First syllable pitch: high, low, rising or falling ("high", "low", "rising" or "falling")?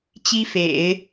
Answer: high